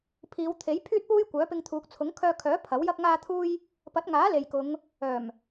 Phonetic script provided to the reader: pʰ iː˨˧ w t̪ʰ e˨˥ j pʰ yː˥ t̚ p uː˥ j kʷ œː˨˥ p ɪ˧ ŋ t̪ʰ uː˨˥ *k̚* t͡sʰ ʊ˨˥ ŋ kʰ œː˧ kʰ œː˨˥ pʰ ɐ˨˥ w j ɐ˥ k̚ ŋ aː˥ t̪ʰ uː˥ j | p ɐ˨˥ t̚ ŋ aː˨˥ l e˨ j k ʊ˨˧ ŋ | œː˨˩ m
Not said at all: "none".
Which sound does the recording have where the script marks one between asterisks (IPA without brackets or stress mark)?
k̚